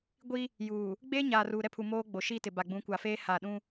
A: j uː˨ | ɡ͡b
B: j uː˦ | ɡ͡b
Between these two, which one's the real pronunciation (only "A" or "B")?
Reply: A